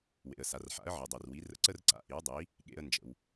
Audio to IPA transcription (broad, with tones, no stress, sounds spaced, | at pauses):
w ḛ˩ ə̯ s a˩ r ħ a̰˩˥ ə̯ ʕ ɨ˩ dˤ i˩ r w i˩˥ r ə̰˧ ǀ ə˥ r ǀ a̰˩˥ ʔ i˩˥ w dˤ i˩˥ | ɠ ḛ˧ ə̯ n d͡ʒ ə̰˩ w